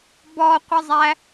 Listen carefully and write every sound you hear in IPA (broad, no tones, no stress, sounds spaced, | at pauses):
b ɔ qʷ ə zˤ æ